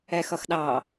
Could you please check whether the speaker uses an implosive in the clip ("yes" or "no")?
yes